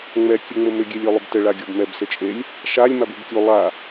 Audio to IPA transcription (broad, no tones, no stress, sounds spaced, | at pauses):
ŋ͡m ɛ kʲ ɨ ŋ͡m ɘ m ʏ ɡʲ e lʲ o lˠ ʏ b t ɘ ɭ a ɡʲ o b m ɛ b s ɘ t͡ʃʼ e lʲ | ʃ a lʲ m a b u b kʲ u lˠ a